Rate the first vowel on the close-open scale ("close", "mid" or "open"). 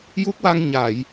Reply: close